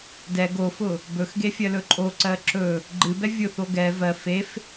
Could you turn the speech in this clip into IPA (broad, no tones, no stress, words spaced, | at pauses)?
dɛ ɡofʊ | bɵxɡefʲɜlɵ ǃʼoǀɜ ǁɵ | ɡ͡ǃɨbɛ vʲʊθo ɡɛ vɜ fef